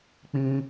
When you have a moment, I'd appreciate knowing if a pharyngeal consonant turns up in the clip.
no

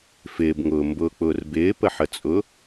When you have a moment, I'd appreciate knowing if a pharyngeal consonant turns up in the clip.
yes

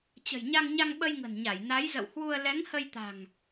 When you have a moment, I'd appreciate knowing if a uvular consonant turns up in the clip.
no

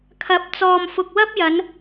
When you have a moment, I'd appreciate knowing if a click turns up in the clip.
no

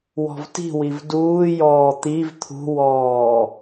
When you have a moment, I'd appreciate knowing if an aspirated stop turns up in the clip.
yes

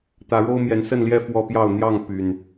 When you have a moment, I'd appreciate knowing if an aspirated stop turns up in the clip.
no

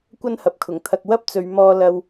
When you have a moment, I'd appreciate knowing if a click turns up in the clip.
no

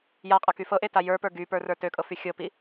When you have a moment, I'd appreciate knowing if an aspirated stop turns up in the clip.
no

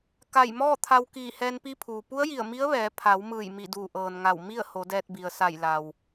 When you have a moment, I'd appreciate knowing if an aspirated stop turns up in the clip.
yes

